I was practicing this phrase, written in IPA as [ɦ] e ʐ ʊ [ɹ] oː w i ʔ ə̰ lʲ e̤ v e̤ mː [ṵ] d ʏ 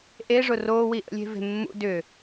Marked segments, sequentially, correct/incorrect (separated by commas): incorrect, incorrect, correct